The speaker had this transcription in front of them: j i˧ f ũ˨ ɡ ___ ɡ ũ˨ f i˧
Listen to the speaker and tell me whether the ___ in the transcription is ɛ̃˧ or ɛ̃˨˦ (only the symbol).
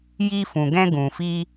ɛ̃˧